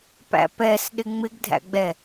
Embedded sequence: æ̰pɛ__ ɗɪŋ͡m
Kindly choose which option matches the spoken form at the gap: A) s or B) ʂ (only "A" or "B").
A